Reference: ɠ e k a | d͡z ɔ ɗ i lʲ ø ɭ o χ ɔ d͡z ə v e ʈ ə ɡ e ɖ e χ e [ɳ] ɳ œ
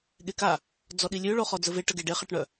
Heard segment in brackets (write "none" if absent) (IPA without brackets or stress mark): ʈ